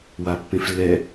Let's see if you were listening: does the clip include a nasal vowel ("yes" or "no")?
yes